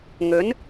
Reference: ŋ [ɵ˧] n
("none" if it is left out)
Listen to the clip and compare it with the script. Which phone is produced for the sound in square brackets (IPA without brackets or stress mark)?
ɵ˨˥